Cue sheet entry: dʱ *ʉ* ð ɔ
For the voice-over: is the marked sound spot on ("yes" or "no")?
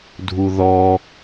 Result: no